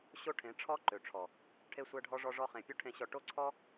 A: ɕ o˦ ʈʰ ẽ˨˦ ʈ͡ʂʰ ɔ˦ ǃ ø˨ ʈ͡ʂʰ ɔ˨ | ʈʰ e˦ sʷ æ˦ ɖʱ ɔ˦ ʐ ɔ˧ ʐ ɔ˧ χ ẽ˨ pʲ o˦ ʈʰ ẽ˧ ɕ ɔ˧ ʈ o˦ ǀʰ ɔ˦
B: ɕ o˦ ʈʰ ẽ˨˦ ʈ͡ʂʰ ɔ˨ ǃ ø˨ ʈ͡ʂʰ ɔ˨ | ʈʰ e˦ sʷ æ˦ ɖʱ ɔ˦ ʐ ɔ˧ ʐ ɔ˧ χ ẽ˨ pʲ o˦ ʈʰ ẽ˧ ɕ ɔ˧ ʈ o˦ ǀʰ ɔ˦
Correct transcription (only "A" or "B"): A